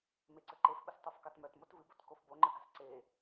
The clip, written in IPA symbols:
m e ǀ ə ǃ e f ɓ ə s tˤ u f k ɑ t m œ t m o t v ɨ b o t k o f b o ŋ͡ǃ ə ɡ a̤ s ǀ e

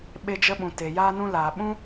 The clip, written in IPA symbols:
ɓ e˧ d͡ʒ ə˧ ɓ ũ˨ t e˨ j aː˧ n ũ˧ l aː˨ ɓ ũ˦

